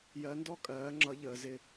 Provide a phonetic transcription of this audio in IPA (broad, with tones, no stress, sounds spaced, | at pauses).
j ɜ˨˦ n d ɔ˥˩ kʼ ɜː˨˦ ŋ͡ǁ ʌ˨˦ ʎ əː˨˦ z ɪ˥˩